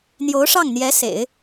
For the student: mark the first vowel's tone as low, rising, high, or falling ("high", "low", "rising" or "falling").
rising